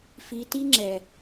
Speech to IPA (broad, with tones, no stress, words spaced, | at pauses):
fi˨ti˦ ŋ͡ǁɛ˨